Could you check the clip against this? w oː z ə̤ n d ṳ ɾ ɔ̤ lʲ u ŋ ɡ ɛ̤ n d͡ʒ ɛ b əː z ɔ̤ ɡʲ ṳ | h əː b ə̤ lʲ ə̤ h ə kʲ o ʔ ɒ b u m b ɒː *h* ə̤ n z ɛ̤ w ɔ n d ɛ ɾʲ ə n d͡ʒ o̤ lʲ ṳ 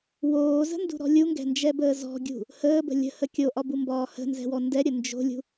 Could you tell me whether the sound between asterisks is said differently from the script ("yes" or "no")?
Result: no